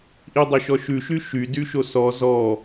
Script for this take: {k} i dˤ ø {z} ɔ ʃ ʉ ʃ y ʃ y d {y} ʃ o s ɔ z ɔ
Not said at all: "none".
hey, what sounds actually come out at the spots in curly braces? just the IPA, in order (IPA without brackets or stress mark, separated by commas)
ʔ, ʃ, y